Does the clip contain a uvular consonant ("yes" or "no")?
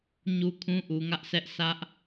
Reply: no